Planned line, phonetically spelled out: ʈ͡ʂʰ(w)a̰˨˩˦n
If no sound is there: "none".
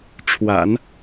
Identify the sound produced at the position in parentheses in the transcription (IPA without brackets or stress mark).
w